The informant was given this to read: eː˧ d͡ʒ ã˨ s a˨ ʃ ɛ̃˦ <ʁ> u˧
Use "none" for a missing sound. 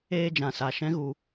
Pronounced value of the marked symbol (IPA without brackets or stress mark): ɣ